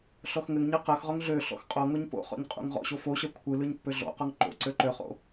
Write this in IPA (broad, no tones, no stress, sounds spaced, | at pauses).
ɬ ɔ x ŋ ɘ ŋ ɲ ɜ q ɜ x ʁ ɔ ŋ ɮ ø ɬ ɔ̰ x qʼ ɔ ŋ o ɲ p o̰ χ ɔ̰ ɲ qʼ ṵ ŋ ʁ ɔ̰ ɕ o f o ɕ ɜ kʷʰ ɯ l ɯ ɲ pː ø ɮ ɔ̰ q ɔ ŋ ǃ o̰ ǀ ø ǃ ø χ o̰